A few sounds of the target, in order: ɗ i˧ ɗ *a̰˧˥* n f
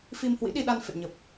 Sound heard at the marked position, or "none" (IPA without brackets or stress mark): a˧